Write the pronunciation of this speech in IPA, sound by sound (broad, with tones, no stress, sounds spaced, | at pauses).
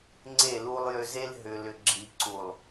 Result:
ŋ͡ǀ e˦˨ l u˦ lˠ j ʏ˦ z e˦ l ɦ ʏ˨ l ʏ˨ ɡ͡ǁ i˨ ǀ u˨ lˠ